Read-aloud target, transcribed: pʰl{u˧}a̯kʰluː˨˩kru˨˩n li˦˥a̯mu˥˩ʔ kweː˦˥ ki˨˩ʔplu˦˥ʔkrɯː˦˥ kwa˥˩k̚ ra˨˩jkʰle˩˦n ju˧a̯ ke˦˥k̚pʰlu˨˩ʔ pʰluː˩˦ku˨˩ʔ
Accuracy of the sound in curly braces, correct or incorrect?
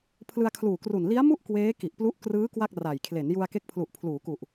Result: incorrect